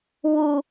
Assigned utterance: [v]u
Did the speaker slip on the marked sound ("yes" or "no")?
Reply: yes